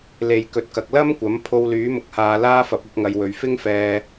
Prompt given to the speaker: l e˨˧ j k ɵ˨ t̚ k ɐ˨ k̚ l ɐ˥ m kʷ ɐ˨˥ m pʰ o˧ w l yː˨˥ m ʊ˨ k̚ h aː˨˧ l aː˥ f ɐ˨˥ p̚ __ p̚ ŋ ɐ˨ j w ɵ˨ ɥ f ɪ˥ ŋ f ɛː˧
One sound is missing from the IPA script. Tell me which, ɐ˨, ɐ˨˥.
ɐ˨˥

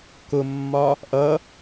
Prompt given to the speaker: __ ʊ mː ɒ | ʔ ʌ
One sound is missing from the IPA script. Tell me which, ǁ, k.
k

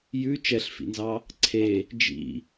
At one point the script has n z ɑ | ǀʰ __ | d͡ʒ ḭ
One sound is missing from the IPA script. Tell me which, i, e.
e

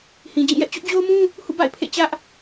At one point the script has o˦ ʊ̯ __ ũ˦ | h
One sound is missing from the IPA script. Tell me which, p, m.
m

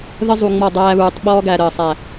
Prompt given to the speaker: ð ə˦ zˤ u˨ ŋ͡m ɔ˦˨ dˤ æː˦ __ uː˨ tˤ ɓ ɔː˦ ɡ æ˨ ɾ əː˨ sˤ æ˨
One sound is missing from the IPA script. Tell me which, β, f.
β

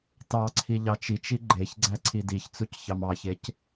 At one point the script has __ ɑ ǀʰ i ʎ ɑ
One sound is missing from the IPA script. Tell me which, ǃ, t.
t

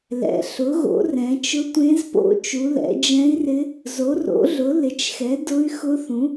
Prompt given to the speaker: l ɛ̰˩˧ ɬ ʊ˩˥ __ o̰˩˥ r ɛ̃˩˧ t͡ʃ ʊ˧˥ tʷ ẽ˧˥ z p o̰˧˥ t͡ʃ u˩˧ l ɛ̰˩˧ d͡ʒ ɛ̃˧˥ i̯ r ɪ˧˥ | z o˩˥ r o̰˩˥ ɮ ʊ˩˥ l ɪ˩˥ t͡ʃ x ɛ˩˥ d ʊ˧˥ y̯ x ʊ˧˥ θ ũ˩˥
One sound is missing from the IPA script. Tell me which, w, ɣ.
ɣ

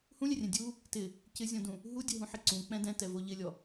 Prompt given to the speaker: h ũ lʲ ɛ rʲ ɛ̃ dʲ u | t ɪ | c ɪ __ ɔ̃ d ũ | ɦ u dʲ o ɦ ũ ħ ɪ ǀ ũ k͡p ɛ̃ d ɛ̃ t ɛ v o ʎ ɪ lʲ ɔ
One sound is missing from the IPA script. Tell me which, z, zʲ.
zʲ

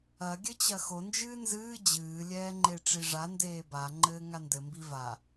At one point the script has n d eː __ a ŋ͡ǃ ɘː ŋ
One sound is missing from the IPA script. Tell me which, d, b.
b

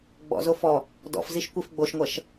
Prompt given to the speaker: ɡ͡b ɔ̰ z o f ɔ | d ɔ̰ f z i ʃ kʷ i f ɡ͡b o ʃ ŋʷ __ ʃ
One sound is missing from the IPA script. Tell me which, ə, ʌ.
ʌ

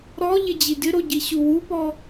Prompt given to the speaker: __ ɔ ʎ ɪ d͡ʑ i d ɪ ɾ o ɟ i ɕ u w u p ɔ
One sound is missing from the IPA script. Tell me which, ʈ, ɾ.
ɾ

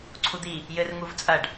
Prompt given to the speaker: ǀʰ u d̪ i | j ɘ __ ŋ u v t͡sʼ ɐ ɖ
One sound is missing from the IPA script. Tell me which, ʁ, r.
r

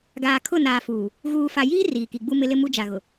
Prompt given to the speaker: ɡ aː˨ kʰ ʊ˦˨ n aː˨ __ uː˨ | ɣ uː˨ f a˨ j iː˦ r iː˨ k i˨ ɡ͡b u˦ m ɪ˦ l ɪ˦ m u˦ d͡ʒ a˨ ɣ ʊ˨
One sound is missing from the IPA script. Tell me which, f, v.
f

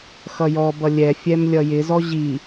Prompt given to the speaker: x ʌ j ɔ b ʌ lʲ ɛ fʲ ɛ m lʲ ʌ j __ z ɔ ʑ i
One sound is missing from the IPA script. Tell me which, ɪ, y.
ɪ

